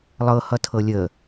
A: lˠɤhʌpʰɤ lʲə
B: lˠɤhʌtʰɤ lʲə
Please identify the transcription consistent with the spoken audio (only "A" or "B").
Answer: B